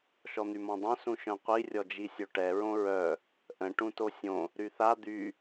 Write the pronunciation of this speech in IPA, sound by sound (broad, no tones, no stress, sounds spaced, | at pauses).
ʃ ɔ n̪ y m ɔ̃ dˤ œ̃ s ũ ʃ œ̃ qʷ i rʲ ɔ d͡ʒ i sʲ o ʈ ɛ ɹ õ ɹ œ | ʔ ə̃ ʈ ũ t o sʲ õ | ɾ y θ a d̪ y